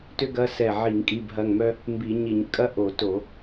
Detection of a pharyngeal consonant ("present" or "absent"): present